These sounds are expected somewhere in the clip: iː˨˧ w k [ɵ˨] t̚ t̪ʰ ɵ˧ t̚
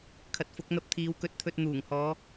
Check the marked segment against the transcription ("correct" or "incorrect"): incorrect